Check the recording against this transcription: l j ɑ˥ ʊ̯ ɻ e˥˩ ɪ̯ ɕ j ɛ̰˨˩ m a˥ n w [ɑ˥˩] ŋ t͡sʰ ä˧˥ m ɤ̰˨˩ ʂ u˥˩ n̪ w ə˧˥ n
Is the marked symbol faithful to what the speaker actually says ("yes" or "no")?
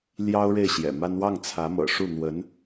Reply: yes